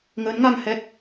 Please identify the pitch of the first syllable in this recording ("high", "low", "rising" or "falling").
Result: rising